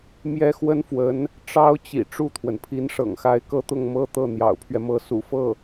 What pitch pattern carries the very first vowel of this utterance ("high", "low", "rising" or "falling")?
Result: high